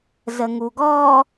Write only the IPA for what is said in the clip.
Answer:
z ə ŋ u ɡ ɔ

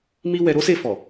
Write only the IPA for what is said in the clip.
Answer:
m i˦ w ɛ˧ ɾ o˦ s e˦˨ f ɔ˨

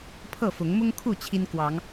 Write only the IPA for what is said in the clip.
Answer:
pʰ ɤ˥˨ f ʊ˨˦ ŋ m ʊ˦ ŋ kʰ u˥˨ t͡ɕʰ i˦ n k w ɑ˨˦ ŋ

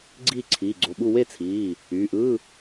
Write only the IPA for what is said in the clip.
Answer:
ɡ͡ǀ iː˥˨ ǀʰ iː˩˧˩ ɡ͡ǀ o˩˧˩ ɓ u˥˨ w e˥˨ t͡sʰ iː˩˧˩ | yː˩˧˩ ʔ ɯː˧˥˧

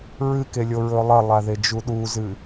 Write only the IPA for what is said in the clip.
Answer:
ɹ ɨ k e lʲ o ɹ ɵ lˠ ɐ lˠ a ð e d͡ʒ u ɗ u z ɨ

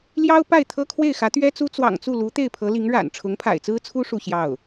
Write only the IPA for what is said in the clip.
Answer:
l j ɑ˥ ʊ̯ p a˥˩ ɪ̯ t̪ʰ ɤ˥ kʰ w e˥˩ ɪ̯ x ä˧˥ t̪ ɥ ɛ˥ t͡s u˥ t͡s w ɑ̰˨˩ ŋ t͡s u˥˩ l u˧˥ t̪ e˥˩ ɪ̯ pʰ ɤ˧˥ l i˧˥ ŋ ɻ a̰˨˩ n ʈ͡ʂʰ ʊ˧˥ ŋ pʰ a̰˨˩ ɪ̯ t͡s ɹ̩˥ t͡sʰ u˥ ʂ u˥˧ ɕ j ɑ˥˩ ʊ̯

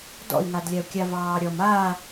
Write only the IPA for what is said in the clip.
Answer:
d ɔ̰ i̯ ŋ a d lʲ a u̯ kʲ a v ɑː ɾʲ ɔ m aː

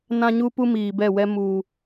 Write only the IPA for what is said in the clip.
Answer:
n ã˦ ɲ u˦ p u˦ m iː˨ b ɛ˦˨ w ɛ˦ m uː˨

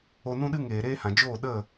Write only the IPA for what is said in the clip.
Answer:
o˨ n ũ˧ ɗ ɨ˧ ŋ eː˨ ɾ eː˦ h ã˨ d͡ʒ oː˦˨ ɗ ə˦˨

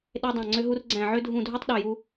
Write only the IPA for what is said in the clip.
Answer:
ɗ e˧ dˤ ɑ̃˧˩ ŋ͡ǀ ø˧ ɦ u˧ r ɡ͡ǀ æ̃˧˩ ʕ ø˧ dʱ ũ˧˩ dʱ u˧ tˤ ɗ ø˧˩ j u˧

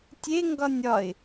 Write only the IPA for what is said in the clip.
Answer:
tʲ e ŋ ɡ ɒ nʲ ɒ ɪ̯

